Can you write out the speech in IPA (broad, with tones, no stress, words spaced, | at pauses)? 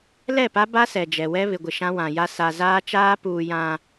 lɛ˦˨pa˦ba˦ sɛ˨d͡ʒɛ˨ wɛ˦βɪ˨ɡʷɪ˨ ʃã˦wã˨ja˦ sa˨zaː˦t͡ʃaː˦ puː˨jã˨